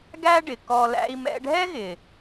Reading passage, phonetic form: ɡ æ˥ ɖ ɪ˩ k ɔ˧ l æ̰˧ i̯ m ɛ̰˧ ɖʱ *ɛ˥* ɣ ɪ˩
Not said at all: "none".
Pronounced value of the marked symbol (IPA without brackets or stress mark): ɛ˥